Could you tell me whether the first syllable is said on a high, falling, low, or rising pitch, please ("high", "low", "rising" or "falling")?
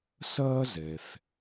high